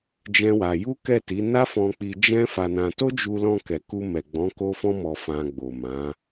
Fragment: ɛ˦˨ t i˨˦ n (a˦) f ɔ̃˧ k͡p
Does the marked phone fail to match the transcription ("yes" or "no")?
no